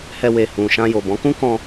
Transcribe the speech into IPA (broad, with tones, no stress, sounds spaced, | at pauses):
h ɛ˧ w e˨ h ũ˨ ʃ ã˧ j o˨ b ɔ̃˨˦ k ũ˦ k ɔ̃˦